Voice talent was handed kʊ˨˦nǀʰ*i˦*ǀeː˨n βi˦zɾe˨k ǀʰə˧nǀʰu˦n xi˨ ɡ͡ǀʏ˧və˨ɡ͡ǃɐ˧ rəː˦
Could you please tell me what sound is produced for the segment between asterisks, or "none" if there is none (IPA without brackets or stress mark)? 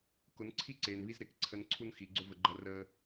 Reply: i˦